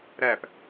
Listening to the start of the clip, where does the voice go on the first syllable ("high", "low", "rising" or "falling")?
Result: falling